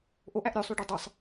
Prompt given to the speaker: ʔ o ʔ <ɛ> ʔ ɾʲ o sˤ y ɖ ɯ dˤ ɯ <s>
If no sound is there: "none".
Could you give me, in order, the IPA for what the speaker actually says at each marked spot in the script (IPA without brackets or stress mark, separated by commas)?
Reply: æ, sˤ